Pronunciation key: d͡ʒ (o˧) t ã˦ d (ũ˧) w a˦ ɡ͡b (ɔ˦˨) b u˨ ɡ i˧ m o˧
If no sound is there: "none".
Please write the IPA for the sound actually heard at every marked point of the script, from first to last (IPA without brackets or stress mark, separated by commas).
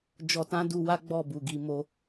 ɔ˧, u˧, ɔ˦˨